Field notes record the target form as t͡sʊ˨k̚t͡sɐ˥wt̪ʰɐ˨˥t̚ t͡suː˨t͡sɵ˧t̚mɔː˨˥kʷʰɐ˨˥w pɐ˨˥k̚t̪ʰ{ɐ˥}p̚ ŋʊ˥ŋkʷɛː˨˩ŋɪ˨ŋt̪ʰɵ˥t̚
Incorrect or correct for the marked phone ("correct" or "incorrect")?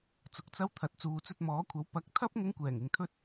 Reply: correct